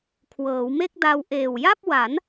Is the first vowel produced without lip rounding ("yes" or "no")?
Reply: yes